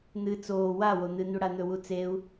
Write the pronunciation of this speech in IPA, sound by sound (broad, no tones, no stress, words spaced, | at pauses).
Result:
n̪ɨ t͡soː wa won̪ɨn̪u ɽan̪ɵwut͡seu̯